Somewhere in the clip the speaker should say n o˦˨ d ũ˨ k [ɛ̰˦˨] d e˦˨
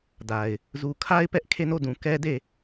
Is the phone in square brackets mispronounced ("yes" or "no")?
yes